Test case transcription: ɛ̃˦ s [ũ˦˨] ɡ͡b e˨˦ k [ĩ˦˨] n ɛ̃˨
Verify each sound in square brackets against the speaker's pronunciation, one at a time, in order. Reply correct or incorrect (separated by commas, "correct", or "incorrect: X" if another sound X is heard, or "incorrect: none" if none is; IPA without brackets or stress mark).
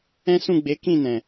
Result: correct, correct